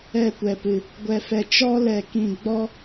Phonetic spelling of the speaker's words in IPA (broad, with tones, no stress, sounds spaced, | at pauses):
ɛ˦˨ kʷ ɛ˧ p ɨ˧ | ɡʷ ɛ˦ f ɛ˦ t͡ʃ ɔ˦ l ɛ˧ k ĩ˧ ɡ͡b ɔ˦